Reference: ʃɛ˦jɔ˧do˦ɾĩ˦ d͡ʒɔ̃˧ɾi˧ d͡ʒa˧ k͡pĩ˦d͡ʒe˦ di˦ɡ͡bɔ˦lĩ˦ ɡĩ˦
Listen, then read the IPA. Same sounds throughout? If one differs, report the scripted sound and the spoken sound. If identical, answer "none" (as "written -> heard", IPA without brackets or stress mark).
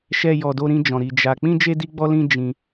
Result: ɡ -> d͡ʒ